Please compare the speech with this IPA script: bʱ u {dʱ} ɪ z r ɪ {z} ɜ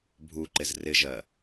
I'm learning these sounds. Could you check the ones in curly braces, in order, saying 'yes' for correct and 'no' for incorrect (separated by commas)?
no, no